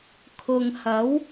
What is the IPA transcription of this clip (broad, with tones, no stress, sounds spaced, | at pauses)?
kʰ ʊ˨ ŋ h ɐ˨˧ w